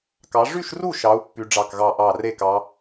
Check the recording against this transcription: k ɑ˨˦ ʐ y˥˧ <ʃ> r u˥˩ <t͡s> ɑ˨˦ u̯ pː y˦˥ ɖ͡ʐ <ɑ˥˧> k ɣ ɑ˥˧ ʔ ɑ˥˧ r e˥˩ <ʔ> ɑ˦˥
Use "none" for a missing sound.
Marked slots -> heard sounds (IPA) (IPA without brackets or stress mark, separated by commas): ʃ, ʃ, ɑ˥˧, k